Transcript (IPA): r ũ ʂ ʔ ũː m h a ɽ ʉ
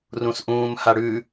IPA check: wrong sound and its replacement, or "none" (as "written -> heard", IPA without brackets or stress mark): ʂ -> s